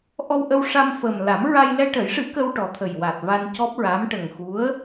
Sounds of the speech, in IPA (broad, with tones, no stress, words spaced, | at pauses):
ʔɔ˧wʔə˧wʂa˧mfəː˨˩m la˨˩˦mɹa˧j lɛ˧ʈə˨˩˦jʂɨ˨˩˦ kə˧wʈɔ˨˩t̪ʰə˨˩jwa˨˩t̚ va˧ncɔ˦˥p̚ɹa˧˥m ʈə˨˩ŋxu˧˥ə̯